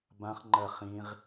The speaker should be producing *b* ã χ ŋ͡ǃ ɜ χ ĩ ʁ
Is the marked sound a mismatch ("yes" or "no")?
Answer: no